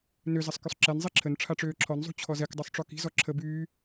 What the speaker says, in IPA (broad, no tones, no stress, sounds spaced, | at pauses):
n ø z ɐ sˤ k y sˤ ǁ ɛ n zˤ i ǁʰ ə n ʈ͡ʂʰ a ʈ͡ʂ øː ǁʰ ɔ n zˤ ṳ t͡ɕʰ ɔ z ɛ k dˤ u sˤ ʈ͡ʂ ɔ k i̤ z ɔ ǁʰ ə b yː